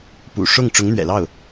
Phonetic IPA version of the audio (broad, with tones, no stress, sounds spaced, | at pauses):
p ṵ˨˩ ʂ ʊ˥˩ ŋ ʈ͡ʂ ʊ˧˥ ŋ n̪ ɥ ɛ̰˨˩ l ɑ˥˩ ʊ̯